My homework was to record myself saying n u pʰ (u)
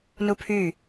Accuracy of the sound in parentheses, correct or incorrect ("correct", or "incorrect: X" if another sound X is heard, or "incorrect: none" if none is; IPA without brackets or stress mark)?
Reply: incorrect: y